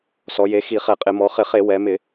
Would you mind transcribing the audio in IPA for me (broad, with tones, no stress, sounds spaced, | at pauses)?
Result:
s ɔ˩˧ j e˩˧ x i˧˩˧ χ ɛ˧˩˧ qʼ ɪ˧˩˧ m ɔ˩˧ χ ɪ˧˩˧ χ e˧˩˧ w ɛ˩˧ m ɪ˧˩˧